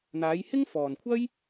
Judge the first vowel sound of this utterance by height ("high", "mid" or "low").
low